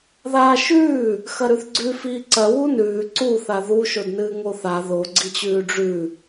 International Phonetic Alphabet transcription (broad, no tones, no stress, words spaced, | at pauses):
ðaːʃʉː | xɐɾʉθɡ͡ǀʉ fiːǀɐ wunʉː ǀu θaðu ʃodnɨːŋoθa ðo ɡ͡ǀit͡ɕʉːɖ͡ʐʉ